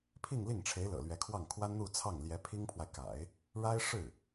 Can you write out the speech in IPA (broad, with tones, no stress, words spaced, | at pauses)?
pʰi˥˧ŋli˥˩ŋʈ͡ʂʰe˧˥ɪ̯ lɤ̰˨˩lɥɛ˧˥kʰwɑ˥˩ŋ kʰwa˥nn̪u˥˧t͡sʰɑ˥˩ŋ ljɛ˧˥pʰi˥ŋpʰwa˨ɪ̯ka̰˨˩˦ɪ̯ | ɻa˥ɪ̯ʂɻ̩˥˩